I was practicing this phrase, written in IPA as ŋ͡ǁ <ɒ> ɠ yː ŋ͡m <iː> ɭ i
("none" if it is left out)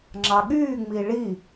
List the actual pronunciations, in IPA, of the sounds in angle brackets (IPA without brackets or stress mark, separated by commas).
ɑ, i